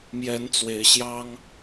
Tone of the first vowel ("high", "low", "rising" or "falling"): rising